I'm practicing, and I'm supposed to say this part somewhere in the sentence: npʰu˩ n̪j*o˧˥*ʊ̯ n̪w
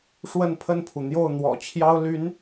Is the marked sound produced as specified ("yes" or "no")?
no